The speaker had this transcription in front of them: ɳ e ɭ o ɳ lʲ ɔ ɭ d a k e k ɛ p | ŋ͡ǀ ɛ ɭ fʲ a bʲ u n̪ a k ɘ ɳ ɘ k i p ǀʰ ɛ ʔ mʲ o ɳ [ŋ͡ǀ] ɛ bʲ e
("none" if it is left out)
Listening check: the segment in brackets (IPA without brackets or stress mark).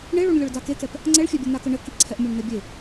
n̪